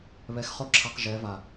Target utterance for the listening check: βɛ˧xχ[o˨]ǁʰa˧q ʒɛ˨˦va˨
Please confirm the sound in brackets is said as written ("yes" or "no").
no